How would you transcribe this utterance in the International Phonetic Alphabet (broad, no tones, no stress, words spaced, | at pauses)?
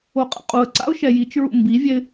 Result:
oqʼɛ̰qʼuə̯ǀa̰ʊ̯ ʃɛjit͡ʃɹṵ mbivʲɛɪ̯